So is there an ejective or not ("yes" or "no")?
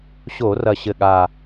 no